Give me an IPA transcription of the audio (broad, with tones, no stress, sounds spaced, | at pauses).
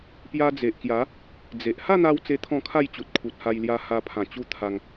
p j a˧ d͡z e˨ ʔ k j a˨˦ | d͡z e˨ ʔ h a˥˧ n̪ a˧ w t͡s e˦ t̪ʰ ɔ̃˥˧ kʰ a˥˧ j t͡ɕ u˨ t̚ kʰ u˨ t̚ h a˧ j l j a˧ h a˧ pʰ ã˨˩ t͡ɕ u˧ t̪ʰ a˧ ŋ